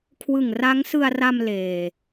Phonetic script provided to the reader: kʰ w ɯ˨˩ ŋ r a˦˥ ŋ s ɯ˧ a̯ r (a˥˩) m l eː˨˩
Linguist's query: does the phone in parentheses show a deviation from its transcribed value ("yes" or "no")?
yes